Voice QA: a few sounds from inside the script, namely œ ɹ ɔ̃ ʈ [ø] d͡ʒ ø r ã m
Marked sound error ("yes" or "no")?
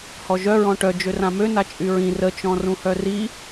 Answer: yes